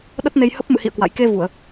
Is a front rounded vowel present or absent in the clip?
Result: absent